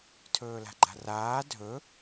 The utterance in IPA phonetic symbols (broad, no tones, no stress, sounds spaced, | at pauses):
tʰ ɵː l a̤ ɡ͡ǃ a̤ r aː dʱ ɵ